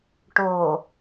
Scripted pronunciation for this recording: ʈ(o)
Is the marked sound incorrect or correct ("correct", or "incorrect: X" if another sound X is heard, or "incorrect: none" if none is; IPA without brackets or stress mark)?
correct